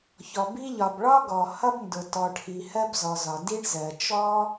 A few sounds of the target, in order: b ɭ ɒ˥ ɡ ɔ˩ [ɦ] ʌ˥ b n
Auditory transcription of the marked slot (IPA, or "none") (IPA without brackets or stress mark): h